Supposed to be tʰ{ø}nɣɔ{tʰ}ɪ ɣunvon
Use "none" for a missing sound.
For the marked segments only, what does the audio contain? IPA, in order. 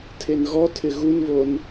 e, tʰ

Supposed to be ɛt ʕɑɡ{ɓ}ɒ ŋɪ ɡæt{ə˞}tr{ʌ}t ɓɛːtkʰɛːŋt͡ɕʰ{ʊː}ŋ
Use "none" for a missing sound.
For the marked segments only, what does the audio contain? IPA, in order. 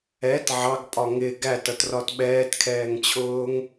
pʼ, ʌ, ɒ, ʊː

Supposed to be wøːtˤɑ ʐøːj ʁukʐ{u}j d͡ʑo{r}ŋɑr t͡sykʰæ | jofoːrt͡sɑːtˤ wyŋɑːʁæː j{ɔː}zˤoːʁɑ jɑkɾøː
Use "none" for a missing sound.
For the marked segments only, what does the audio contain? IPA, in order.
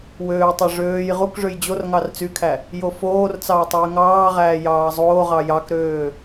ø, r, ɑː

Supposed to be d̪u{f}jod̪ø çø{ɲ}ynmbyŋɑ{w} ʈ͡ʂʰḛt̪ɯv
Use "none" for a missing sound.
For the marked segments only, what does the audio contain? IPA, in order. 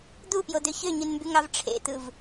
p, ɲ, v

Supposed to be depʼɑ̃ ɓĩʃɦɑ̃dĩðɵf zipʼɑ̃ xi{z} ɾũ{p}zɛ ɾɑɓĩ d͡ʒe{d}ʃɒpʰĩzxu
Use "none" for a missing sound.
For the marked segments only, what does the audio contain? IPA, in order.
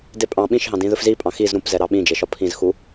z, p, none

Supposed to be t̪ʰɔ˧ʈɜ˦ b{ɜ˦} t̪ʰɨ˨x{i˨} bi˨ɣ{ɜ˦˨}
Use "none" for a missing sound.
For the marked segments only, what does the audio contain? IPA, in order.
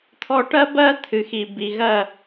ɜ˦, i˨, ɜ˦˨

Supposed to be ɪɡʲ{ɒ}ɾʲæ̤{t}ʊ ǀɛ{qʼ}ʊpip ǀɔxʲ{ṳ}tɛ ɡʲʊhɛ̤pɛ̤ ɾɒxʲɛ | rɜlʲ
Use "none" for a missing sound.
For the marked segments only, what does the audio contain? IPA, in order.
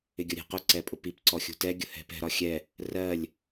ʌ, q, pʼ, ṳ

